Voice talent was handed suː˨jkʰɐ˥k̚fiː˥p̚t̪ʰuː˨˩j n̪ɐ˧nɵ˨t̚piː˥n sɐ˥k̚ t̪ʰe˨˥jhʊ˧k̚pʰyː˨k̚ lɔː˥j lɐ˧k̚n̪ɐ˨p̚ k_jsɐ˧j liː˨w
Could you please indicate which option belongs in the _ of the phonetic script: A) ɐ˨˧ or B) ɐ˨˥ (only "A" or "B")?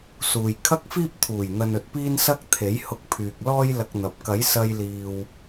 B